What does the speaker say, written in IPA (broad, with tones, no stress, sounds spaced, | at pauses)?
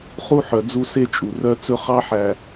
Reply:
χ u˦ ħ œ˨ d͡z u˦ s e˦ t͡ʃʼ u˨ r œ˦ t͡s ɵ˦ χ ɑ˦ ħ æ˨